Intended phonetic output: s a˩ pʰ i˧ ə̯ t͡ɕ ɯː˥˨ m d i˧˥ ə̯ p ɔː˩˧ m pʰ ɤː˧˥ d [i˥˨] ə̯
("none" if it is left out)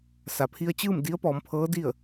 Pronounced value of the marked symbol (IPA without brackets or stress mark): i˥˨